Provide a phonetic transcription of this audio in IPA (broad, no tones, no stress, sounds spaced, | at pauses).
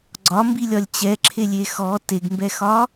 ɡ͡ǀ ɒ m b i lʲ ɒ lʲ t͡ɕ ɛ ǁʰ e lʲ e x ɔ t e ɡ m b ɛ x ɒ